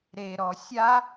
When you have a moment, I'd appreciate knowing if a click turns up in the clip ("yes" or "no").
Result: no